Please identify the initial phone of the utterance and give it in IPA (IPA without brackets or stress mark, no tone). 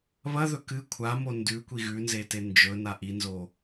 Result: β